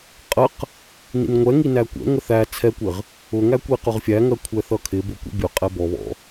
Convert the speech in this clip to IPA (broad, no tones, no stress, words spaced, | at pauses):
qʼəq | nḭnŋʷɛŋi nækʷɛ̰ŋə θæ t͡sʰɛkʷɪʁ | ʊŋæ kʷiqʊʁfʲæŋɜ kʷʰɛθʌkʰɪbʊ kʷḭbʲʊqʼɛ bɔβɔ̰